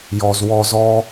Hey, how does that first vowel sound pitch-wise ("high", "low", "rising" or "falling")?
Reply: low